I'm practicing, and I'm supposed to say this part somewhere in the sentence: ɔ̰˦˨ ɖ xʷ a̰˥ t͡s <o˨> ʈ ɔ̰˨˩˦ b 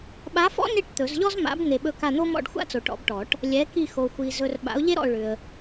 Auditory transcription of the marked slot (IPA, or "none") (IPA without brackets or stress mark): o˨